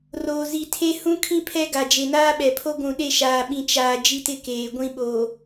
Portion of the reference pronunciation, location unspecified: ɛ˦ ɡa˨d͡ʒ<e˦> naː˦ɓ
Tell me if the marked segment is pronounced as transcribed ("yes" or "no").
no